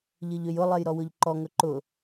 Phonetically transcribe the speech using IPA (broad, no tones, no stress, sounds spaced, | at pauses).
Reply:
ʎ ɘ ʎ ø j ʊ lˠ e j ɾ ɔ w ʊ ʎ ǃ ɔ ŋ ɵ ǃ ʊ